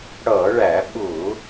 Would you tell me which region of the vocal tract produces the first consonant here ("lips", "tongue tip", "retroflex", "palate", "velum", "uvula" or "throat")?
retroflex